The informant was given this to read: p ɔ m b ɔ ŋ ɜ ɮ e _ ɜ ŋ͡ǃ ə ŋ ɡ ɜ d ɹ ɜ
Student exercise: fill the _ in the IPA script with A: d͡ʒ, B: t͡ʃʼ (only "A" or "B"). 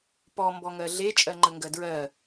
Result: B